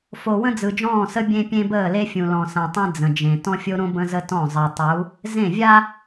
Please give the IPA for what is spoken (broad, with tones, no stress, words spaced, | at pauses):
fo˨ wə̃˦d͡zɯ˨d͡ʒɔ̃ː˦˨sə˦ bʲẽ˦pʲẽ˦ bəː˦˨le˦fʲũ˨ lɔ̃˨sã˨tˤẽ˦ d͡zə̃˨d͡ʒẽ˨ tɔ̃˦fʲo˦ɾõ˦ bə̃˦zə˦tɔ̃˦˨ zˤəː˨tˤu˨˦ | zẽ˦˨vʲa˦